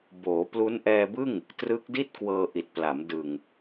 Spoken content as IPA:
b oː˩˦ p l u˦˥ n ʔ ɛː˧ b ɯ˥˩ ŋ | t r ɯ˦˥ k̚ d i˥˩ t̚ k w ɤː˧ ʔ i˨˩ t̚ p l a˩˦ m d ɯ˨˩ ŋ

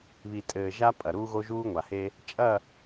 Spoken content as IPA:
β i˨ tʼ ɘː˨ ʒ a˦ pʼ ɐ˨ ɾ uː˦ ɣ o˦ ʒ uː˦ ŋʷ a˨ h e˦ | t͡ʃʼ ɐ˦˨

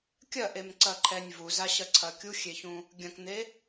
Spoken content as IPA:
kʲ ɐ ʔ e m ǀ ɐ ǃʰ ɛ nʲ v u z a ɕ ɐ ǀʰ ɐ kʲ u xʲ e ç ũ | ɡʲ ɐ̃ k n̪ e

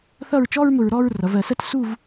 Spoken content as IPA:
θ ʌ˥˧ ɹ t͡ʃ ɔ˥ ɹ m ʊ˧ ɹ ɾ ɔ˥˧ ɹ r ʌ˩˧ v ɜ˩˧ s ɜ˥ t s u˥˧ v

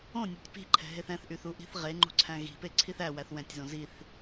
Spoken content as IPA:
õ nʲ ɤ tʲ p i̤ ǃʰ ɛ̤ ɦ e θ ɛ̃ θ ʔ y θ u ʔ i̤ θ ʁ e ŋ͡ǃ ṳ ǀʰ æ̃ ɣ i̤ p e ǀʰ i θ æ w æ θ w ɛ̃ tʲ z õ z i θ

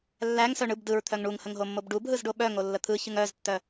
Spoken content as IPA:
lː æ ŋ s œ ɳ ɯ b d ɯ ɹ t̪ʰ œ ŋ ɳ u ŋ h ə ŋ ɦ o mː o b ɖ u b ɦ ɯ z ɖ o ɓ œ ŋ o lː ə t̪ʰ ɯ ç ɯ ŋ œ z tː œ

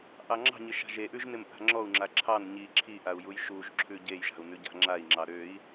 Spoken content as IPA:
ʔ ɑ ŋ͡ǁ ɑ̤ ɲ ɪ ʃ a̤ ʒ e ʔ ʉ ʒ n ɪ m ʔ a̤ ŋ͡ǁ ɔ u̯ ŋ͡ǁ a ǁʰ ɑ n ɲ i ǁʰ i ʔ a u̯ j u j ʃ u ʒ ǁʰ ʉ ɟ e j ʒ a̤ u̯ n ʉ ɟ a̤ ŋ͡ǁ a i̯ ŋ͡ǁ ɑ ɾ ø i̯

